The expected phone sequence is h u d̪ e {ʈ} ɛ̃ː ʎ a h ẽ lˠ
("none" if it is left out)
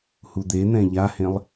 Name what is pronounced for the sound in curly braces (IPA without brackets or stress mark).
n̪